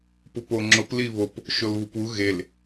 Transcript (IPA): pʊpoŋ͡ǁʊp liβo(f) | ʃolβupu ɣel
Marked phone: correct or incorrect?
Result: incorrect